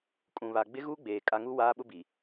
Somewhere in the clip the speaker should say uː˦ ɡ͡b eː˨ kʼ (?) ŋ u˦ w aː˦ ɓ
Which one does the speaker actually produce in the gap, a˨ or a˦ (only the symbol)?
a˦